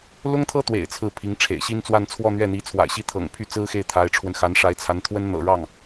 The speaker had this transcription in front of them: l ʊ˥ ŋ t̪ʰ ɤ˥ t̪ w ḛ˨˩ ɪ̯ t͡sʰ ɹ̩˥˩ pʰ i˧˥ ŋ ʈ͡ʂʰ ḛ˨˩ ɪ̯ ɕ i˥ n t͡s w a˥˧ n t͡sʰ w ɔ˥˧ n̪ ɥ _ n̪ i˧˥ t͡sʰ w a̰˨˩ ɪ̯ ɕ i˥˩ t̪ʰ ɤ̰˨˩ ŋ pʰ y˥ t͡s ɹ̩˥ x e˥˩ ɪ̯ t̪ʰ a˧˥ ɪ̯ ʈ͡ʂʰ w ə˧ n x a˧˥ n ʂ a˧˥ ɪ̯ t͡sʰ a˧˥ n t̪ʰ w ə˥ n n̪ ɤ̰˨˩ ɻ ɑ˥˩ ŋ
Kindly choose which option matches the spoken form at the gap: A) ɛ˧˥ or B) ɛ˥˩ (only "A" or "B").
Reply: B